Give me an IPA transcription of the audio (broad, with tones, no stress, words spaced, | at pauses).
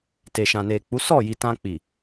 te˨ʃã˨ne˨k͡pu˨˦ sɔ˦˨ji˨ tã˧ k͡pi˨